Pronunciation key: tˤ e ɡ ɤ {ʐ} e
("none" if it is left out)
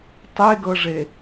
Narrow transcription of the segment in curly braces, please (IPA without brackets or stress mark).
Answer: ʐ